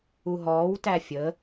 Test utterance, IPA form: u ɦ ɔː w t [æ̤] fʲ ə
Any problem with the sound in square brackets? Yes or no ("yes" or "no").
yes